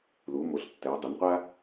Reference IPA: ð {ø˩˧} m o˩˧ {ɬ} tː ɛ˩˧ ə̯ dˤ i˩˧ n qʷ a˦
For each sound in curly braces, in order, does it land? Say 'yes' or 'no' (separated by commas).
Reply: no, yes